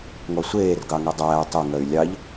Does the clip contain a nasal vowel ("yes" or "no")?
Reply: no